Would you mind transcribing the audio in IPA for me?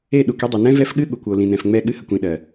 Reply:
e˦˨ ɗ u˨ k i˦ dˤ u˨ n ɛ̃˦ v ɛ˦ f ɠ ɨ˦ ɠ u˨ kʷ o˨ l ĩ˨ n ɛ̃˨ f ŋ͡m ɛ˦˨ ɠ ɨ˦ h ə˨ kʷ ĩ˨ ɗ ɜ˨

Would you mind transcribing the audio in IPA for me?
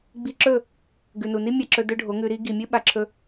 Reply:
ɡ͡b i˧ ǁ ɵ˦˨ | ɡ ʉ˨ n u˨ n i˦ mʲ a˧ ǁ ɵ˧ d ɵ˦ ɖʱ o˨˦ ŋ ʉ˧ ɾ i˦ ɡ i˨ mʲ ɨ˦ ɓ a˨ ǁʰ ɵ˧

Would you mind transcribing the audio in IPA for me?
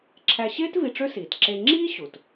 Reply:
ǁʰ æ˧ ɕ eː˥ t v i˧ ʈ͡ʂ ø˥ s iː˩ t ǁ e˧ ŋ͡ǁ iː˥ ɕ u˩ t

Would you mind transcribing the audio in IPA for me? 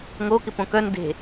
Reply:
ŋ o k ɪ p õ k œ n d e̤

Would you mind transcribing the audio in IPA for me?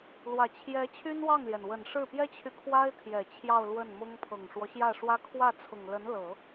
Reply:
l w ä˨˩ t͡ɕʰ j ɛ˧˥ t͡ɕʰ y˥ n w ɑ˥˩ ŋ l j ɛ˩ n w ə˨˩ n ʂ ɻ̩˥˩ p j ɛ˥ t͡ɕʰ y˨ kʰ w a˥ ɪ̯ t̪ʰ j ɛ˨˩ t͡ɕʰ j ɑ˥˧ ʊ̯ l w ə˥˩ n m ʊ˥ ŋ pʰ ɤ˨˩ ŋ ʂ w ɔ˦ ɕ j ä˥˩ ʂ w ä˥ kʰ w ä˥˩ t͡sʰ ʊ˨˩ ŋ l ə˧˥ n l ɤ˨˩˦

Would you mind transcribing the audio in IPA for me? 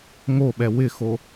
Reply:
ŋ o ɓ ɛ w ɪ x o

